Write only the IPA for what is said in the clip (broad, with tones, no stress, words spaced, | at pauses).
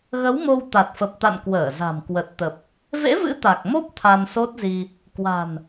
ɣə˨˦wmo˧w t̪a˨˩t̚fə˨˩p̚t̪a̰˧˨n kwəː˧˩za̤˨˩m kwə˨˩t̚t̪ə˨˩p̚ | vḛ˧˥vɨ̰˧˥ t̪a˨˩k̚mo˦˥p̚ t̪ʰa˧nso˦˥t̚zi˧ | kwa̤˨˩n